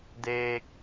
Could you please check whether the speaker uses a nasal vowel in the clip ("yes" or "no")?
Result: no